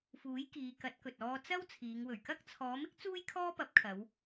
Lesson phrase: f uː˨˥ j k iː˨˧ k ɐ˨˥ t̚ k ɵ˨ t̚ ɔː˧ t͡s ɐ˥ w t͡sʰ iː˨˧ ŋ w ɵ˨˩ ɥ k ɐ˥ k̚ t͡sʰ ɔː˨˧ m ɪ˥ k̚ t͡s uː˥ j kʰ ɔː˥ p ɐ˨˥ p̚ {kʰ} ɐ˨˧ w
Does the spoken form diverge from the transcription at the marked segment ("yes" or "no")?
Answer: no